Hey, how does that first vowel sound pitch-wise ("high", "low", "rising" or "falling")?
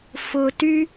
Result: low